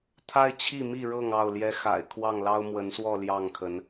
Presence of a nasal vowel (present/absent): absent